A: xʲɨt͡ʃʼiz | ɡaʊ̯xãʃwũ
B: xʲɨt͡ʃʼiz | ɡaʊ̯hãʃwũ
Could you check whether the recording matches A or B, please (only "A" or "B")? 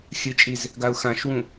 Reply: A